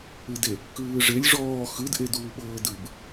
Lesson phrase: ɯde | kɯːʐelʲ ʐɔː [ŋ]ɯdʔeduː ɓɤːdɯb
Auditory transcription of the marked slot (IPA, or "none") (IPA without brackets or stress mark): x